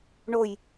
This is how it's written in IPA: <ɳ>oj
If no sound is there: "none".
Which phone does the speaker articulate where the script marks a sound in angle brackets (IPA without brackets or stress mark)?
ɳ